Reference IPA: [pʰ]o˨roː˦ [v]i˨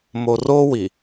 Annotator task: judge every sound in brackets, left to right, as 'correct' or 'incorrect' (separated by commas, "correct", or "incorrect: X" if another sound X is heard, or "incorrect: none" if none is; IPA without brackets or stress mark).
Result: incorrect: m, incorrect: w